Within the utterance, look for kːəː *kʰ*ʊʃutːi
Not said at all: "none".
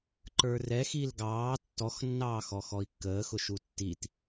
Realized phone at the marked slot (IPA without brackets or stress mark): x